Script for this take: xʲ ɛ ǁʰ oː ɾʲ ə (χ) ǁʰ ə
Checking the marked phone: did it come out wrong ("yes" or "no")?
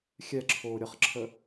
no